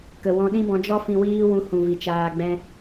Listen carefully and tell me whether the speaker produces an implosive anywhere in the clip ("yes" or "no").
yes